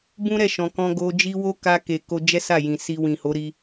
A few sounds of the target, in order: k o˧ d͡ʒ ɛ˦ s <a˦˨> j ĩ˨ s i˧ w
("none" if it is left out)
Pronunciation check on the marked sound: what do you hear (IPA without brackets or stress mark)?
a˦˨